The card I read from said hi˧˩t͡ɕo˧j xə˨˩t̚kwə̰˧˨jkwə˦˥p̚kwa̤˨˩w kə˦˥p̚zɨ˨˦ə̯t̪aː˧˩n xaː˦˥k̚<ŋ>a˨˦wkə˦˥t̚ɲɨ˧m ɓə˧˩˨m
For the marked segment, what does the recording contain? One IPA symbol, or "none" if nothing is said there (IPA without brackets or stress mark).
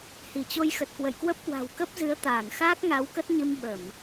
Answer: ŋ